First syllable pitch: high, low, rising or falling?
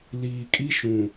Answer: low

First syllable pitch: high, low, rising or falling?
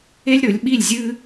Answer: high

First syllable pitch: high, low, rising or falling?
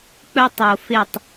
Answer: high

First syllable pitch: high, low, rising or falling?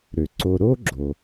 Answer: low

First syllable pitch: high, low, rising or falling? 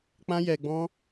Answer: high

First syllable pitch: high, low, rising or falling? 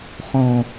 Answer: low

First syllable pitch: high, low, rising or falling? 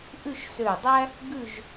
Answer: falling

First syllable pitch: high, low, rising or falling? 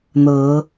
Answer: rising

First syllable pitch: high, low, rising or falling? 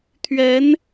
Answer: rising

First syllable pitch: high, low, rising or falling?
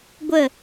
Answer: falling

